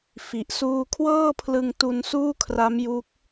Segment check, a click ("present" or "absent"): absent